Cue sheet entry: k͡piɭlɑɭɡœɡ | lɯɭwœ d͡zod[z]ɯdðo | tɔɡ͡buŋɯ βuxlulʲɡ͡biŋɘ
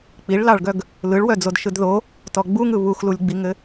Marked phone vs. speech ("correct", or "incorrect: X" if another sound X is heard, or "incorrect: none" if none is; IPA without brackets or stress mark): incorrect: ʃ